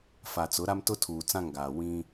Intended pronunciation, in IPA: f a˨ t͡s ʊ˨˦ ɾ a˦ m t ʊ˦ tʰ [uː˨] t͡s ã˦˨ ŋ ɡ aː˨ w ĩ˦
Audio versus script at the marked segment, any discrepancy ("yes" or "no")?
no